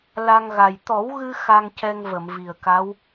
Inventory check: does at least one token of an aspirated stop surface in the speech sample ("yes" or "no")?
no